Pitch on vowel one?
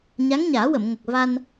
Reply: rising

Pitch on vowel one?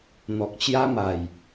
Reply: low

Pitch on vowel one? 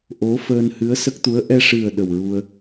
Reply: rising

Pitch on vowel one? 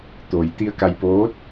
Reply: low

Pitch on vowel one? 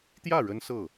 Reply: falling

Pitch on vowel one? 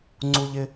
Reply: high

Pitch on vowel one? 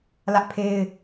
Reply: high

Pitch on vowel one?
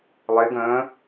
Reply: rising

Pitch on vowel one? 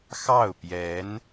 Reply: falling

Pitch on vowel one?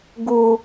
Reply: high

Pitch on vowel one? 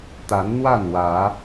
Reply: rising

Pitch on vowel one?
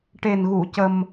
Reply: low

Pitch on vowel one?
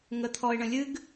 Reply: high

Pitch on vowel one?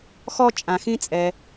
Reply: high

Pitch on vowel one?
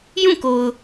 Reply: falling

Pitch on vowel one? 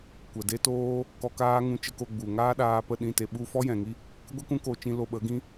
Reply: low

